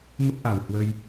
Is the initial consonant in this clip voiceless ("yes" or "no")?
no